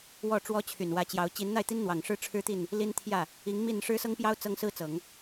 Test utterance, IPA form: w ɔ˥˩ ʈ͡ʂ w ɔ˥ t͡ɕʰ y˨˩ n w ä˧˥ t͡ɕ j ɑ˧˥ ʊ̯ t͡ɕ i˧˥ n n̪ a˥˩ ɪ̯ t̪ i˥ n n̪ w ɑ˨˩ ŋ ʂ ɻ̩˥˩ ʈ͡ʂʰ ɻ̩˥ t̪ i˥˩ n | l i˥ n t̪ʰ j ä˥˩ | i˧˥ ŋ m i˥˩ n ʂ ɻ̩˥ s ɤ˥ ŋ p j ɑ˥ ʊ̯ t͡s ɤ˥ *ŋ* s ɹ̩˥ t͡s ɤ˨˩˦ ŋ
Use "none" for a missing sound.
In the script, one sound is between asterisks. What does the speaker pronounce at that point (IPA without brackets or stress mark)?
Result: ŋ